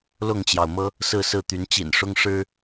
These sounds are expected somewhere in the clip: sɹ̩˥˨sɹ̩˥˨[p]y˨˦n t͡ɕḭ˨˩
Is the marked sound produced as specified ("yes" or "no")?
no